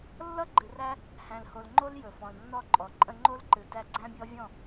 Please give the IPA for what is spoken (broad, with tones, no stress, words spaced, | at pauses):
lːʌ˦ ɡ͡ǃɨ˨ræ˦ | hæ̃˨lho˨lŋ͡ǃo˦l jɵ˨fɔ̃˨lnːɔ˦˨ǃʼɔ˨ ǃʼə̃˧ŋ͡ǃo˦lǃɨ˨ tæ˧ɡ͡ǀæ̃˦bʲɔ˦ vʲɔ̃˦˨